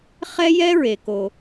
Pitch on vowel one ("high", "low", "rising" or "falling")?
high